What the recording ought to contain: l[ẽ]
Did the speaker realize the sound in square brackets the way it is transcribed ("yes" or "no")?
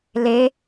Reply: no